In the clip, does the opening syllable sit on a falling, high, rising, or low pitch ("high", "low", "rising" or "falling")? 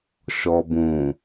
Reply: low